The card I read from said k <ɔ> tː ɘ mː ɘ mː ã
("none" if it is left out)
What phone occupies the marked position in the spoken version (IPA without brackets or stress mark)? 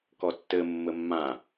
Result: ɔ